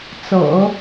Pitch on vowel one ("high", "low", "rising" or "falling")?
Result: low